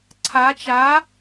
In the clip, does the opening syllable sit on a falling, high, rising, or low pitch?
rising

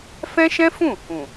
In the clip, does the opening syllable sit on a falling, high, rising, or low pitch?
high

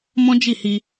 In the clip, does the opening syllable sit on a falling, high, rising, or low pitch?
high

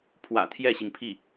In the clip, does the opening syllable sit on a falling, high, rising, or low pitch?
low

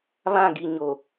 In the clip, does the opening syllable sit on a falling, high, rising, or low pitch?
falling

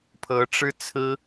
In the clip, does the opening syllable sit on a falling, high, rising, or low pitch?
rising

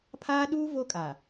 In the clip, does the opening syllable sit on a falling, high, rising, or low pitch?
high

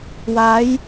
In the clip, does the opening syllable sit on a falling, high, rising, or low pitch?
rising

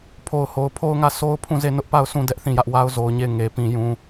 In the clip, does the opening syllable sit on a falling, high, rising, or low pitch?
low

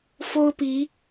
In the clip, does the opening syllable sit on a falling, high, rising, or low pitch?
high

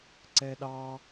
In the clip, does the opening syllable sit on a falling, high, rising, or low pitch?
high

